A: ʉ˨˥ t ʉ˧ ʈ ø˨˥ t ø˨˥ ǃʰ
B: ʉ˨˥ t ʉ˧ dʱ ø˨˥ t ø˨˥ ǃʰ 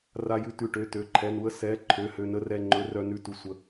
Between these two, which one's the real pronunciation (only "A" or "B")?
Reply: A